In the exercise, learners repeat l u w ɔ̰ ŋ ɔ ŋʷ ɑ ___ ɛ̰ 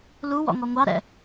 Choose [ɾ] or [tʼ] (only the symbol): ɾ